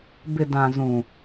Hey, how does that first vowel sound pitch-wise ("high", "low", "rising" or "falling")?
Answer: low